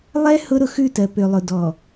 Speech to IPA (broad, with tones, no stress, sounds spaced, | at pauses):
lˠ ɛ˦ h ʊ˦ ɾ ʊ˨ x ʉ˦˨ t ɜ˨ p ø˨ lˠ ʊ˨ d ɔ˨